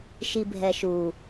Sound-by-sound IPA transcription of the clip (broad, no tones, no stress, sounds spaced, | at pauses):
ʃ i bʱ ɛ ʃ u